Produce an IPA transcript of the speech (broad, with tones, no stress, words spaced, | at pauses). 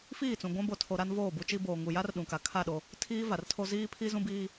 fiː˦˨t͡sũ˨ɡʷã˦ bo˨tʰo˨ ɾa˦n voː˦˨bu˦t͡ʃi˦ boː˨ŋu˨ ja˦rɗũ˨ka˨ kʰa˦˨ ɗo˦ | tʰiː˦va˨rtʰo˦ ziː˦pʰi˦zũ˦biː˦